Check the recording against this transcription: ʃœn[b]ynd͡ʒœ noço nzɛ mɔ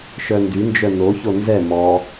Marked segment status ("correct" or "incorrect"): incorrect